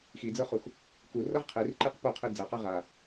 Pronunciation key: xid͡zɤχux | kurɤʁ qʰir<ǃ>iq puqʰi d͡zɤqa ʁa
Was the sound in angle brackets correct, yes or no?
yes